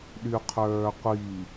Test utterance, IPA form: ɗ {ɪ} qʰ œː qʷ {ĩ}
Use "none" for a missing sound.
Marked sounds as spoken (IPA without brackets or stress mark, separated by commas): y, i